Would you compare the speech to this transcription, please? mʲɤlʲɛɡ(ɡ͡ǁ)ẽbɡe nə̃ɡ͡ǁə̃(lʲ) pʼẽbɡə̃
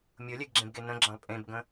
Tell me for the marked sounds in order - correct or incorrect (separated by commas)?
correct, incorrect